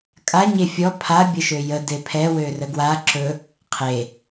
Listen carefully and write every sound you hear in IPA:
kʼa ɲefʲɔ pʰa bʲəʃøjə depʰɛ wørəɡwa ǁɵ | qʰe

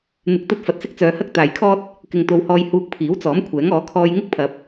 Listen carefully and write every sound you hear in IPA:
n̪ɪ˧k̚t̪ɐ˥t̚ fɐ˨t̚sɪ˥k̚t͡sœː˨˧hɐ˥k̚ t̪aː˨jkʰɔː˥t̚ | kɪ˨ŋt̪o˨˧whɔː˧j huː˧k̚pʰiː˨˥wt͡sɔː˨˥m kʷʰɛː˨˥ŋɔː˨˥ kʰɔː˧j ŋɪ˥k̚pʰɐ˨˥p̚

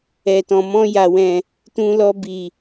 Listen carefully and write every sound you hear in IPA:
ɛ˨tɔ̃˨ mɔ̃˧ja˨wɛ̃˨ | tũ˧lɔ˧bi˨

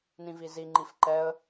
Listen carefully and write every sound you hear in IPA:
nĩvizi ŋ͡ǃifǃɛə̯

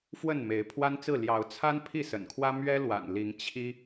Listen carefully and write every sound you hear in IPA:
fwə˥˨nme˨˦ɪ̯ pʰwa˦nt͡sɹ̩˥˨ ljɑ˨˦ʊ̯t͡sʰa˦n pʰi˥˨sə̰˨˩nkʰwä˦ mɥɛ˦ lwa̰˨˩nli˨˦ŋ t͡ɕʰi˦

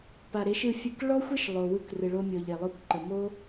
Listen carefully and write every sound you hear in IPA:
pa˨ɾe˨˦ʃɯ˦˨fʲɯ˧k ɭɔ˦xʷe˦ʃ lˠo˨wɯ˧k rɯ˨ɭo˧mʲɔ˨ʎ e˨lˠo˧kʷǃə˨ mo˦

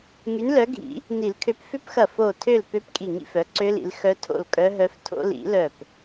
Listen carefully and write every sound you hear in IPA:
ŋy˨˦nlœ˨˦ɡʱḭ˨˩˦ | ni˨˩˦lkʰø˨˦p fʏ˦˥pxɐ˧˩ fo˥˨ tʰø˥˨l pø˦˥pkʼi˧˩ ŋḭ˥˨fœ˨˦ ǀø˦˥lḭ˨˦l xœ˦˥tʰo̰˥˨l kʼœ˦˥ɦœ˦˥ftʰo̰˦˥ lḭ˨˩˦lœ˧˩p

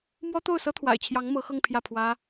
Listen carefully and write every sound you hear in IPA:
mwɔ˥ t̪o˥˩ʊ̯sɤ˥t̪ʰwa̰˨˩ɪ̯t͡ɕʰjɑ˧˥ŋ mɤ˧˥ xɤ˥˧ŋpʰjä˥˩pʰwä˥

